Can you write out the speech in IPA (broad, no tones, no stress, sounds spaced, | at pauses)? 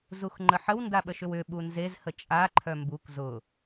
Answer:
z u x ŋ͡ǃ ə ħ ə w n d a ɓ ə ʃ ʏ w ʏ ɓ u n z e z h ə t͡ʃʼ a ǃʰ œ m b u k z ʊ